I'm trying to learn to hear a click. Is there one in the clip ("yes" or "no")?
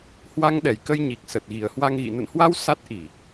no